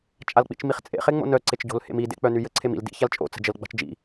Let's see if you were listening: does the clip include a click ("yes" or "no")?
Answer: yes